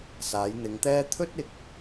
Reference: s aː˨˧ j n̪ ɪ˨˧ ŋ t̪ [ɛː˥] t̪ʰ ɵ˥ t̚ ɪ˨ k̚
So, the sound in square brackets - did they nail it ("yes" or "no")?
yes